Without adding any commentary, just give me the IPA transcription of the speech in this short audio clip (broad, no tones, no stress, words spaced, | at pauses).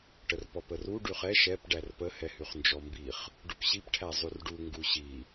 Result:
ʈərpɔpəru ɖyχɛ ʃɛp ɖærpə hɛhyχnd͡ʒɔmbiχ | ɖupɕip ʈʰæzˤyrɖu ŋɡuɕi